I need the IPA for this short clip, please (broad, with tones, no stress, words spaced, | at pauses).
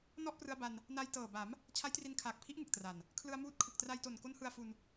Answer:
nɔ˥˩ʔprɯ˧a̯ ba˧n | na˧jtɤː˨˩ba˩˦m | t͡ɕʰa˦˥jtri˧nkʰaː˨˩k̚pʰi˦˥ʔ ŋɯ˨˩k̚tra˨˩n | kʰlɯ˧a̯muː˦˥t̚ kʰɯ˨˩k̚tra˧jto˨˩n ko˦˥nhɯ˧a̯fu˧n